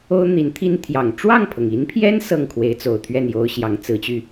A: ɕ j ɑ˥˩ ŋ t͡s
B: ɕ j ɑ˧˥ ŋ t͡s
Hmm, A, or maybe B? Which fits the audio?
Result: B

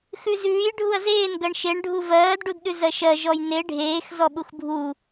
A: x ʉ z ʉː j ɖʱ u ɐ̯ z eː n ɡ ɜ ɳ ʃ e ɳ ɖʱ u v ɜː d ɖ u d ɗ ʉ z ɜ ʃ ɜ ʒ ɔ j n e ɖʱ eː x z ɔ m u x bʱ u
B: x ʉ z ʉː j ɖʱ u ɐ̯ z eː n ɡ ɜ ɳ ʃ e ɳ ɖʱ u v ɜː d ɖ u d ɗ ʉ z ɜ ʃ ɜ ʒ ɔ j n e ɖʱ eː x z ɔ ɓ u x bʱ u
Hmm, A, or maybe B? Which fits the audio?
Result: B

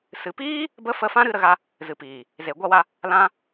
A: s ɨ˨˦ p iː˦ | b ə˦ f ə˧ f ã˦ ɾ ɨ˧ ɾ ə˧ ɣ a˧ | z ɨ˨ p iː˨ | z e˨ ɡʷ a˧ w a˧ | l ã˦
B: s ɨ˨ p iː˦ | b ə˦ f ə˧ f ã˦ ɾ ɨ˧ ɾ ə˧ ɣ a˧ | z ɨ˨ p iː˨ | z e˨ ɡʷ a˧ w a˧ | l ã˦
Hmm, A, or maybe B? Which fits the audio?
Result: B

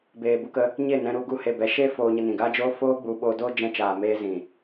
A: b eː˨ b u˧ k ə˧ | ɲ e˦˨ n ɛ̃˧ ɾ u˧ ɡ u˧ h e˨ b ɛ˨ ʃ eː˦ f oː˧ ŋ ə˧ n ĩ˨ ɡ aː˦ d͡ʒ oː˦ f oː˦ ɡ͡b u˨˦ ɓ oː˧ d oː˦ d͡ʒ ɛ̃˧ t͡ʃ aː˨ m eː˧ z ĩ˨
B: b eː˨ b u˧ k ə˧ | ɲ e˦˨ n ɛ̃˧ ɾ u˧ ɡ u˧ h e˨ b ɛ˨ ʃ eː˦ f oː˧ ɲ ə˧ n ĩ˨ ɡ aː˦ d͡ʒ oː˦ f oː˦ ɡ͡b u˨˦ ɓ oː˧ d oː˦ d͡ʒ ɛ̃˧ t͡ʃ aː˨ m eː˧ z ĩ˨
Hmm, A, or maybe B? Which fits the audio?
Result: B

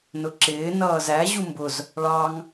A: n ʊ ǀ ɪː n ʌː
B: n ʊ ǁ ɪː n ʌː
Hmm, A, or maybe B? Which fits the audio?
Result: B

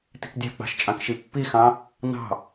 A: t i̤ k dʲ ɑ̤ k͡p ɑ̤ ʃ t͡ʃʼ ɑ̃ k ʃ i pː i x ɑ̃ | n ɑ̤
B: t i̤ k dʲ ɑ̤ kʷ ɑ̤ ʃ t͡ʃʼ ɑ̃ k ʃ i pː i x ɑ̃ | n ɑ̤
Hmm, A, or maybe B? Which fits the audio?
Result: A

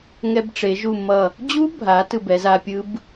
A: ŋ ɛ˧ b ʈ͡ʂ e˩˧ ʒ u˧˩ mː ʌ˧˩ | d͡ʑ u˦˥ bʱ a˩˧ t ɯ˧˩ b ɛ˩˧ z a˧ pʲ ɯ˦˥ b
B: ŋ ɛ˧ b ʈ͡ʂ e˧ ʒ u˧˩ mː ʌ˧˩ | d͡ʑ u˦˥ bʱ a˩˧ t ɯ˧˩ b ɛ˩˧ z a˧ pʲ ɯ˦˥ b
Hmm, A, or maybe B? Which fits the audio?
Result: A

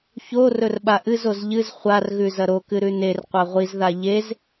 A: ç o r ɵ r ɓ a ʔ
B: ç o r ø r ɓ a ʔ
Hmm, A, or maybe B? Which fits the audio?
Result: A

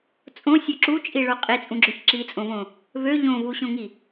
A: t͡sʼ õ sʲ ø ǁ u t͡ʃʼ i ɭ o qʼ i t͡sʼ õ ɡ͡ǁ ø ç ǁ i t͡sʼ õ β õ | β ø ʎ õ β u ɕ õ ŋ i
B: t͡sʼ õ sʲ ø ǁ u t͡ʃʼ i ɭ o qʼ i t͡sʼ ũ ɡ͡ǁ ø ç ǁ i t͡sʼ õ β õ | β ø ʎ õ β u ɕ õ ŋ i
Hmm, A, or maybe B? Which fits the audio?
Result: B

